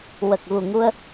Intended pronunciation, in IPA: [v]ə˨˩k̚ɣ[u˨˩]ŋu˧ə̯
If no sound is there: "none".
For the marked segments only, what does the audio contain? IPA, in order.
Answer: w, u˨˩

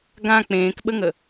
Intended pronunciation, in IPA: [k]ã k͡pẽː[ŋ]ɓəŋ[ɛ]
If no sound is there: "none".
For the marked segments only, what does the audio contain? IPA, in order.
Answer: ɡ, k, ə

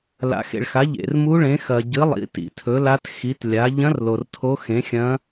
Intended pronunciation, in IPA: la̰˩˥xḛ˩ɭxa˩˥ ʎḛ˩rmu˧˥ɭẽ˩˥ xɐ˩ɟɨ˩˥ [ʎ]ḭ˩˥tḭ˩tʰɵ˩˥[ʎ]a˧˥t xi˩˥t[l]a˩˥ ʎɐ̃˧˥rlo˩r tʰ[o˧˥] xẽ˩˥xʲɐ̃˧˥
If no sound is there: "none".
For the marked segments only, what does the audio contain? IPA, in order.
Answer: lˠ, l, lʲ, o˧˥

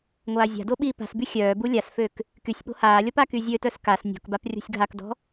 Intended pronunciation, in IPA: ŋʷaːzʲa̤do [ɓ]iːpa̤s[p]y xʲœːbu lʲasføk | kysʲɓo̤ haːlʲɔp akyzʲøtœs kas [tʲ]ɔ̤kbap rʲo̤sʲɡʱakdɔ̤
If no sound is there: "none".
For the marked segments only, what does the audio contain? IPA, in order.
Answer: ɓ, b, nʲ

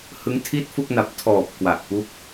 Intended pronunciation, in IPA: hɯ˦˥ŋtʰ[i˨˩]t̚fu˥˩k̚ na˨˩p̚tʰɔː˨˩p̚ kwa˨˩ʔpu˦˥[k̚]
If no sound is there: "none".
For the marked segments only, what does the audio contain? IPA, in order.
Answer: i˥˩, k̚

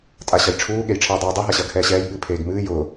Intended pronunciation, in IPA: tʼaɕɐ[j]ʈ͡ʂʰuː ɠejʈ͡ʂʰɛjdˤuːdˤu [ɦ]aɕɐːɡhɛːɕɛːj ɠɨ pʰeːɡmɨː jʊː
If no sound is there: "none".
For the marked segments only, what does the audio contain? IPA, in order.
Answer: j, ɦ

